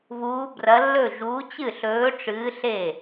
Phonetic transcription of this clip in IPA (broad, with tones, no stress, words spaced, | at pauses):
βuː˨˥brɐ˨˥lːɵ˥˩ ʒuː˨˥t͡ɕɨ˥˩ɬɵː˨˥ʈ͡ʂɨː˨˥ ɬe˥˩